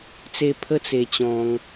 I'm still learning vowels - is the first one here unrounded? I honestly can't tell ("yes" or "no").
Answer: yes